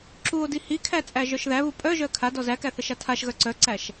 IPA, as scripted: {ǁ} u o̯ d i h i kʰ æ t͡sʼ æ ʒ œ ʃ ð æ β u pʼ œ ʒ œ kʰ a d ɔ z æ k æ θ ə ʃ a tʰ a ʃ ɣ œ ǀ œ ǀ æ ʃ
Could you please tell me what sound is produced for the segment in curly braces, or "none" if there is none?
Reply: ǁ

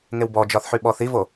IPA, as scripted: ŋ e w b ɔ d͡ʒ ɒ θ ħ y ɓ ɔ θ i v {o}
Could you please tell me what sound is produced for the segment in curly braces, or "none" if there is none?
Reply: o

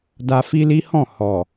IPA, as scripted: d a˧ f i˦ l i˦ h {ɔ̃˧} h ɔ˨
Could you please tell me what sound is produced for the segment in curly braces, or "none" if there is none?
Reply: ɔ̃˦˨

